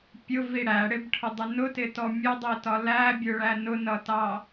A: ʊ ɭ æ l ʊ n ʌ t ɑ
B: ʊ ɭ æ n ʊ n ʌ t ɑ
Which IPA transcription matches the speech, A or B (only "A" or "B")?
B